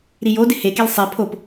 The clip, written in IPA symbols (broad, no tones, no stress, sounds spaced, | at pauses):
ɾ i j o d ɪ h e k e l sˤ e pʰ o p